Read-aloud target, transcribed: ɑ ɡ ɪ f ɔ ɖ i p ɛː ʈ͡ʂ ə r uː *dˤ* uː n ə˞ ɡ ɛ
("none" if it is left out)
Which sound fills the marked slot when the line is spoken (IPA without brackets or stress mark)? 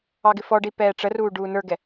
ɖ